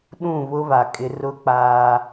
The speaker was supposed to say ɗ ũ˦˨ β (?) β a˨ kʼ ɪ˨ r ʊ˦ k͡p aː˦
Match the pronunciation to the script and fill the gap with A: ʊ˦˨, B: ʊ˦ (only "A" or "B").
B